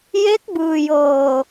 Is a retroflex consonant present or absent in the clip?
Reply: absent